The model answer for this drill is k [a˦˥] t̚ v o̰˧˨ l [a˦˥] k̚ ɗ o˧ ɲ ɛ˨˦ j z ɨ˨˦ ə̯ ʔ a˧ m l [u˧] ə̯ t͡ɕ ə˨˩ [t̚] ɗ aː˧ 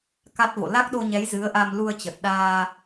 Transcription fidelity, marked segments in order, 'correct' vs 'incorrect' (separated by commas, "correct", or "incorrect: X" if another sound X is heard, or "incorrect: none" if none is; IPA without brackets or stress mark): correct, correct, correct, correct